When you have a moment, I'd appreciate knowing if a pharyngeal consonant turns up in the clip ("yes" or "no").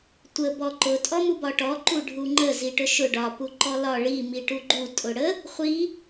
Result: no